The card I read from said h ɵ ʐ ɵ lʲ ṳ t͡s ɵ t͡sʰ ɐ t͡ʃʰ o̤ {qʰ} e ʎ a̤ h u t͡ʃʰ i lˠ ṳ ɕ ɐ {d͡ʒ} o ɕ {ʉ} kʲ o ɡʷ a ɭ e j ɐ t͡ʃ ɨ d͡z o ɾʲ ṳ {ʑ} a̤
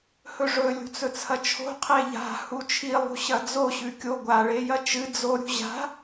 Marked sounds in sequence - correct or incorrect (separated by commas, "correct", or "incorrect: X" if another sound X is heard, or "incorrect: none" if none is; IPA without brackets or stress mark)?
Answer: correct, incorrect: d͡z, correct, correct